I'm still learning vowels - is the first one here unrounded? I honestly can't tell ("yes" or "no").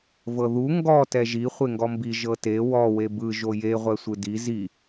yes